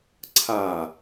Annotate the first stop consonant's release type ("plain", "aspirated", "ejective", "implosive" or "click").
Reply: click